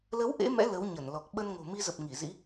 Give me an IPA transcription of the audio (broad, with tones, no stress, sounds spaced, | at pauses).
l ə˨˦ w ʔ ḛ˧˥ m ɛ̰˧˥ l ə˨˦ w ɲ ə˧˩ n l ɔ˨˩ k̚ ɓ ə˧ n ŋ o̤˨˩ m i˧ z ə˨˩ p̚ ŋ i˧˩ z ḭ˧˥